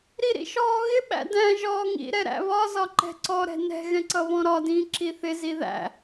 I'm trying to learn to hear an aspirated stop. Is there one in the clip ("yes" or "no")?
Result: no